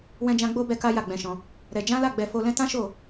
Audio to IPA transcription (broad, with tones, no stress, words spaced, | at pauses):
wɛ̃˧d͡ʒã˧ ɡ͡bo˦ bɛ˦ka˦ ja˦˨ɡ͡bɛ̃˧ʃɔ̃˧ | ɾɛ˧ d͡ʒã˦ la˦˨ɡ͡bɛ˧ fo˧lɛ̃˦ tã˦ʃo˦˨